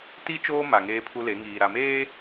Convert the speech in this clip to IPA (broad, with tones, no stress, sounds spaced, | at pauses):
t i˦ t͡ʃ oː˦ m a˨ ŋ eː˦ pʰ u˦ l e˨˦ ŋ iː˨ ɾ a˨ m eː˦